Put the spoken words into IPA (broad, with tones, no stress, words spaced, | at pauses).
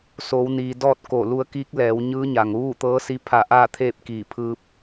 soː˩˧wniː˩ dɔː˥˨t̚ ko˧˩ lu˧ə̯kiː˧˥k̚ lɛː˩˧wɲɯː˧˥ɲa˩ŋ ʋuː˥˨t̪ɤː˧˥si˧˥ pʰa˧˩ʔaː˥˨ t̪ʰeː˥˨p̚kiː˧˩ pʰɯː˧p̚